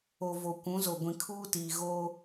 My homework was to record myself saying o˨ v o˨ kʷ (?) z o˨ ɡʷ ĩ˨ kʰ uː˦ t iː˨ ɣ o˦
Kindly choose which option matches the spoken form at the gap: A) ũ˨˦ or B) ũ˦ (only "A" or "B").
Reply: A